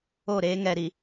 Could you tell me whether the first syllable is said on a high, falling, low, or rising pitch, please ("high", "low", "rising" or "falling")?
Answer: falling